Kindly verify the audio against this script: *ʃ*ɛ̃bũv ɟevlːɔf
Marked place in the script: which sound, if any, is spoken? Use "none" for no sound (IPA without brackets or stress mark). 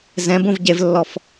z